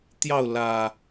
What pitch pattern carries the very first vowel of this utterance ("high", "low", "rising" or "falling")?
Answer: falling